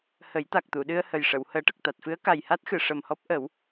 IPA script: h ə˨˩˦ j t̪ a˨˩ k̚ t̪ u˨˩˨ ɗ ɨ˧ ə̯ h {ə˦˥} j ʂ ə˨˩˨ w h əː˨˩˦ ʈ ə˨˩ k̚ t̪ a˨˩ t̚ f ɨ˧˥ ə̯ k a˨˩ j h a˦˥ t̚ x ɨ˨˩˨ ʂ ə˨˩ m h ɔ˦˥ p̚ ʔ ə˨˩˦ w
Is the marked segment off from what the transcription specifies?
yes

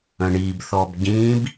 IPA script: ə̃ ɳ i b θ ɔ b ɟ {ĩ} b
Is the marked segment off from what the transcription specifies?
no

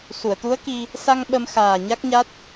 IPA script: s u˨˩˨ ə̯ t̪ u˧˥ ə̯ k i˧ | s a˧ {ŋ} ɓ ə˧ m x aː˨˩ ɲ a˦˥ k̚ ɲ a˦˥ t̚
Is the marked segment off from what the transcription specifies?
no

